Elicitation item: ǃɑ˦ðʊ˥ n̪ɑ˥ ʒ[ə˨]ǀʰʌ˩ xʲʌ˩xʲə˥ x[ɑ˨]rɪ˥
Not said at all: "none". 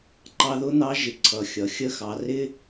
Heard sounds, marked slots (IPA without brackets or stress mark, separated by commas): ɪ˨, ɑ˨